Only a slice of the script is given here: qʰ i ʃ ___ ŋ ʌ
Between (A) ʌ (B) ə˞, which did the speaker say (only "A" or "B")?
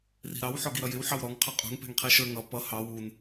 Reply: B